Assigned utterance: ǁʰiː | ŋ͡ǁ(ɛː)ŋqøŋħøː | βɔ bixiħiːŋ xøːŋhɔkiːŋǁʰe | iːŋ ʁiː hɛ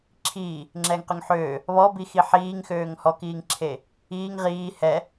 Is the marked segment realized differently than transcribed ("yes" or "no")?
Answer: no